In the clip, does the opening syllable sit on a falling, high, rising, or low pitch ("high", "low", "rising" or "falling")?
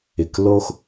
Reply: low